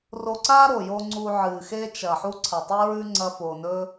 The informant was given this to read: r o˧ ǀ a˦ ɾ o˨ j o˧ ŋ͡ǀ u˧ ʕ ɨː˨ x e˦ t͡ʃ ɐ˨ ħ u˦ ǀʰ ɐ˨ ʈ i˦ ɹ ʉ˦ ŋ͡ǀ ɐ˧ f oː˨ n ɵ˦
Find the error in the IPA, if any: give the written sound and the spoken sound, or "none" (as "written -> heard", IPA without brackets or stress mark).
ʈ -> tˤ